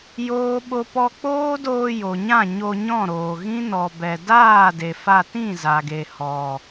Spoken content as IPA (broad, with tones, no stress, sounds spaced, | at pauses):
j oː˦ ɓ o˦ p ɔ˦ k͡p oː˦ d oː˧ j o˨ ɲ ã˦˨ ɲ o˧ ɲ ɔ̃˦˨ ɾ oː˨ ɣ ĩ˦ n ɔ˨ b ɛ˨ d aː˦˨ d e˨ f a˧ t ĩ˦˨ z a˨ ɡ e˨ h ɔ˨